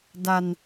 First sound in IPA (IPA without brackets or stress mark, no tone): d